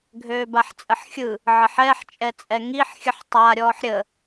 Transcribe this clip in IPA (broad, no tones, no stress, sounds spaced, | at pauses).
ɡʱ øː b a ħ t͡sʼ ə ħ xʲ ɯ | ʕ ə ħ ɛ ħ t͡ʃʼ ɛ t͡sʼ ɛ ŋ i ħ xʲ ə ħ tˤ a ɾʲ ɔː ħ ɾʲ ə